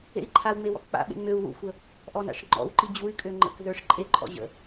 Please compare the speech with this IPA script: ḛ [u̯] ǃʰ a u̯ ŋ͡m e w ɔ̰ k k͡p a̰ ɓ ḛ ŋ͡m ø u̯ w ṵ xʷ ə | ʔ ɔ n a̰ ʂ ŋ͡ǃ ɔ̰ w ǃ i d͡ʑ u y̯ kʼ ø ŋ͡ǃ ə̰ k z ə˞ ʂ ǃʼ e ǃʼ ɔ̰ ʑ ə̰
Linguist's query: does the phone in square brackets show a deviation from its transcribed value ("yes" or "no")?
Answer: yes